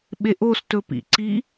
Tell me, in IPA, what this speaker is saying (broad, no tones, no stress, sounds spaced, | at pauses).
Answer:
ɓ e ʔ o s t ɵ p ḭ ǀ i